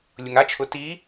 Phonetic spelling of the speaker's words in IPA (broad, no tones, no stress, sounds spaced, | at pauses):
lʲ ʊ ŋ a t͡ʃʰ ʊ t i